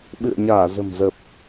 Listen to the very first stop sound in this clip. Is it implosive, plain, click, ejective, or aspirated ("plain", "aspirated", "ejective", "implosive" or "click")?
implosive